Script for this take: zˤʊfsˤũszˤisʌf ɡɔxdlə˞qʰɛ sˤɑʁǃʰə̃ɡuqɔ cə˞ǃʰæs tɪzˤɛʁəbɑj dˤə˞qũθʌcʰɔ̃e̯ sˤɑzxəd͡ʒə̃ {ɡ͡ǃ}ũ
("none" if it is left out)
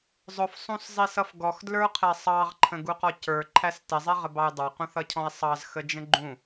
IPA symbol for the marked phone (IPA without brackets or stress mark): ɡ͡ǃ